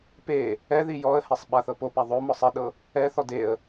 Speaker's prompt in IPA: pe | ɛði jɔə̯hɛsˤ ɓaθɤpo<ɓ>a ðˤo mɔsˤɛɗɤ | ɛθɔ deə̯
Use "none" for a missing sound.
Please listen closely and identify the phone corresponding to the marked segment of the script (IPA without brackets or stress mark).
p